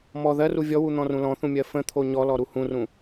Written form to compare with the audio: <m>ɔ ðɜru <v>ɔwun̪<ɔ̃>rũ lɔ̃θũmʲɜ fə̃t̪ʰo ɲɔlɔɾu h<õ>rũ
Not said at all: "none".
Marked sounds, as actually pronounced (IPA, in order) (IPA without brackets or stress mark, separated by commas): m, vʲ, ɔ̃, ũ